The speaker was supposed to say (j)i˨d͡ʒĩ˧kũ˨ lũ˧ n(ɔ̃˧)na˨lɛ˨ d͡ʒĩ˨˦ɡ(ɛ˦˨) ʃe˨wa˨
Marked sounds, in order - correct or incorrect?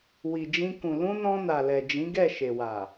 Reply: incorrect: w, correct, correct

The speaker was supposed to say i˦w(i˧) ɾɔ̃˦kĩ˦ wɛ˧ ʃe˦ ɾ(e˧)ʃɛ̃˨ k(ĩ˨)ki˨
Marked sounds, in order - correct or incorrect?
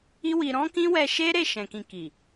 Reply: correct, incorrect: e˦˨, correct

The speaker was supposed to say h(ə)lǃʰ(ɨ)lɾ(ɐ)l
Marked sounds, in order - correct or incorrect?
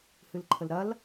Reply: incorrect: ɨ, incorrect: ə, correct

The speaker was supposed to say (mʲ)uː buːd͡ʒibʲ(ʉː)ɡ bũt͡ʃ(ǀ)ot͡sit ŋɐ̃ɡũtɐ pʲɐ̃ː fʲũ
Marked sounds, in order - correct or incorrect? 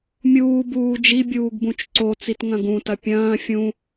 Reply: correct, incorrect: uː, correct

